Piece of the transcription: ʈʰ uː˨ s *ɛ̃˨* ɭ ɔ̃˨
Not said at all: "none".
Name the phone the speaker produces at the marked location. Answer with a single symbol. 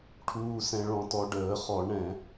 ɛ̃˨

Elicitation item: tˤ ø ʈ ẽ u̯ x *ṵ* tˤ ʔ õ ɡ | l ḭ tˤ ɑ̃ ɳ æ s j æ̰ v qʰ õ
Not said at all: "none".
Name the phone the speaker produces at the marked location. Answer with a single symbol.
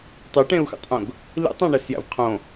ṵ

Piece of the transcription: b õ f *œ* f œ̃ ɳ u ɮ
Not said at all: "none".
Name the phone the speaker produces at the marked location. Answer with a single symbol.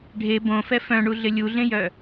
ɛ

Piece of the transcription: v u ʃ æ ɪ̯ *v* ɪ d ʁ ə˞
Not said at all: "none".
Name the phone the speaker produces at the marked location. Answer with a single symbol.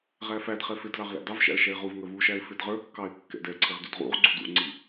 f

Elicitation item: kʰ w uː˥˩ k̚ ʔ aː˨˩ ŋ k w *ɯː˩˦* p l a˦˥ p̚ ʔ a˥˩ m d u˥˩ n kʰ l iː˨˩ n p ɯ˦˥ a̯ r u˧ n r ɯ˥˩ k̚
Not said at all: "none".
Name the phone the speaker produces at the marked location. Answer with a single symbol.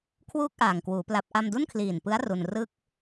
uː˩˦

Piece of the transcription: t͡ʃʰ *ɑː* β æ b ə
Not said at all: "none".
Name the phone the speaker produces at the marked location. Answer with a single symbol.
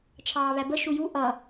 ɑː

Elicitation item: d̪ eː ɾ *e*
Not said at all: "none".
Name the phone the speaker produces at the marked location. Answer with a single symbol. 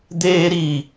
i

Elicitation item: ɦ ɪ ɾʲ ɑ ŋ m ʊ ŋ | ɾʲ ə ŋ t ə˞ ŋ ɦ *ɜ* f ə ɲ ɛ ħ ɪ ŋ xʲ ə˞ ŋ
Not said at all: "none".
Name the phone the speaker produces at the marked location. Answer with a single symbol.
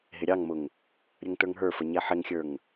ə˞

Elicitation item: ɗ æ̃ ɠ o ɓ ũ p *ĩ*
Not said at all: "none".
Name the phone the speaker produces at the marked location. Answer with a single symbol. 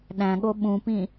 ĩ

